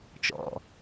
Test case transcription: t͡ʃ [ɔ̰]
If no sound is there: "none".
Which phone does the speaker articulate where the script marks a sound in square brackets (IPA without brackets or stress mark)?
ɔ̰